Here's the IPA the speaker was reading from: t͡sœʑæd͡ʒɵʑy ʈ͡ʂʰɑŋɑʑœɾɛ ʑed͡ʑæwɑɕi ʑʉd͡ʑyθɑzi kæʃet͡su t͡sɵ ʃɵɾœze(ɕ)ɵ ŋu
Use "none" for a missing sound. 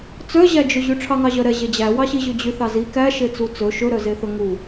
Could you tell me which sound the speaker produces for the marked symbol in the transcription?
θ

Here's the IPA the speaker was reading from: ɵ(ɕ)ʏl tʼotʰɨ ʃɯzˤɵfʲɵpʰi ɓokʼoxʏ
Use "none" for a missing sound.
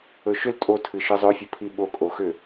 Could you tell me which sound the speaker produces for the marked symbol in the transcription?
ʃ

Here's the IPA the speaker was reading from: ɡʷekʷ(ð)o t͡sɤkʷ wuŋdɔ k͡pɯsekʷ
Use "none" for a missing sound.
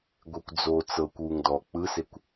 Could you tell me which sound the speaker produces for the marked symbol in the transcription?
d͡z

